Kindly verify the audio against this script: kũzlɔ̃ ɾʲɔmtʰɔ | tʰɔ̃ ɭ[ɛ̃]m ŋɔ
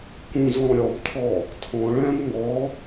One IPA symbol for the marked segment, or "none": ɛ̃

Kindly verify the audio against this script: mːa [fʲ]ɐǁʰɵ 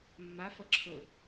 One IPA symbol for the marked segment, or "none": f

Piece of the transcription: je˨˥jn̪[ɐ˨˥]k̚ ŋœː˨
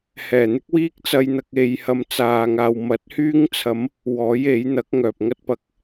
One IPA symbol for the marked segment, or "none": ɐ˨˥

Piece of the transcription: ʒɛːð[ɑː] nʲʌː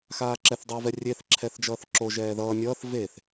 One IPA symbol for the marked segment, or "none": ʌː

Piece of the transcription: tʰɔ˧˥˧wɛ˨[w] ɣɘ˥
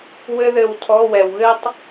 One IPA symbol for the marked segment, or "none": w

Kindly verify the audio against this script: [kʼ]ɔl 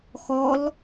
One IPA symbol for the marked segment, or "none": x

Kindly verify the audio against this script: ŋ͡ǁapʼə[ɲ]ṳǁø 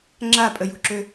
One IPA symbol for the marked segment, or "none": j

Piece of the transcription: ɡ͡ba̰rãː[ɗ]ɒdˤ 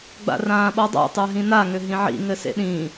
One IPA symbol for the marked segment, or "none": ɓ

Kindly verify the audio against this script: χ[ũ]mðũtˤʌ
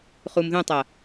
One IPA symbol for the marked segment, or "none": u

